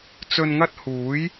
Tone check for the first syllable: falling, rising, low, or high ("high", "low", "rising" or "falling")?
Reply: low